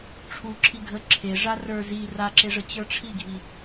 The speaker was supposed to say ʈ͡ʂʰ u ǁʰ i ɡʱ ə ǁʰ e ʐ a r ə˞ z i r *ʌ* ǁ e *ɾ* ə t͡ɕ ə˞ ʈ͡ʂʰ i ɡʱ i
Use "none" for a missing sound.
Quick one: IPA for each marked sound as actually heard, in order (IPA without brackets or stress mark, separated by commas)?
a, ʐ